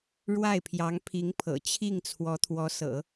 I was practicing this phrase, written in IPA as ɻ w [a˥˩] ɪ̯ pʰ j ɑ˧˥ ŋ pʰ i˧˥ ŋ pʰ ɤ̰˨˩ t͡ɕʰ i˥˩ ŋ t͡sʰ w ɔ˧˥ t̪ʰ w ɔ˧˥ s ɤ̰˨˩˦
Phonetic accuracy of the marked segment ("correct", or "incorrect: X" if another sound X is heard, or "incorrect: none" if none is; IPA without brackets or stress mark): correct